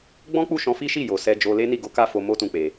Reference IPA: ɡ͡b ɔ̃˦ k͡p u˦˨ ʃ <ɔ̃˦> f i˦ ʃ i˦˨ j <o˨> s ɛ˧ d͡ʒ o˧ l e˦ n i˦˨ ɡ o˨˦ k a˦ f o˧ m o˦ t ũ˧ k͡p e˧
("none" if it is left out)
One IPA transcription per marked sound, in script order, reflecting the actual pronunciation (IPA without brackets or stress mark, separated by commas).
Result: ɔ̃˧, o˨